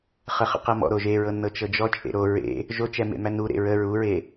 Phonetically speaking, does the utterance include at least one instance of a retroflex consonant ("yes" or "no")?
no